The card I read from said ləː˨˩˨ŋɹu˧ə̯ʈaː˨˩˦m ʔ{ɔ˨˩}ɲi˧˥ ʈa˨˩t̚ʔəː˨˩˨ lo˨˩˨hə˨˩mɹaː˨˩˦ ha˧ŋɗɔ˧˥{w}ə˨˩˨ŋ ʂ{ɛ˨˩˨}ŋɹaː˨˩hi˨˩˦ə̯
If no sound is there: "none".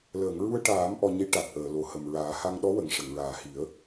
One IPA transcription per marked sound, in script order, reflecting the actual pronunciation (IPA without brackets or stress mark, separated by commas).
ɔ˧, w, ə˨˩˨